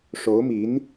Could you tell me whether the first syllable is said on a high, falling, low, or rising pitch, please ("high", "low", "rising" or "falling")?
rising